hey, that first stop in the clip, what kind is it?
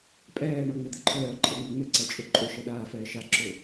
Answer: ejective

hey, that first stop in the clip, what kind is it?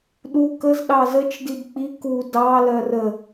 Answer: implosive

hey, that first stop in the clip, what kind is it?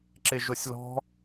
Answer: click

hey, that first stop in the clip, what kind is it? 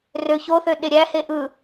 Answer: implosive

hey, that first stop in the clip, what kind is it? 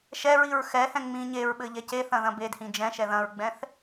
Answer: implosive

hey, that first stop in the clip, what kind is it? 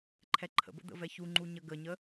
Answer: click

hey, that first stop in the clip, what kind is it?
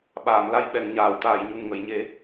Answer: implosive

